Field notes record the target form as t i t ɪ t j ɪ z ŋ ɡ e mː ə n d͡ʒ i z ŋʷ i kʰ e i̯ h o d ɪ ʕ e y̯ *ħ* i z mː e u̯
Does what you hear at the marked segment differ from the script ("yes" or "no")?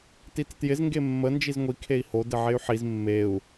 no